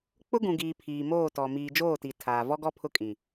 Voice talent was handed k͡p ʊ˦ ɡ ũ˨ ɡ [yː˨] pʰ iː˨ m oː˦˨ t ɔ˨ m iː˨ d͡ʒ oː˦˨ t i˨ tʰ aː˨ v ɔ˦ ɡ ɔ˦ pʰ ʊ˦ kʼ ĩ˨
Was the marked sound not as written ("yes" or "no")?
yes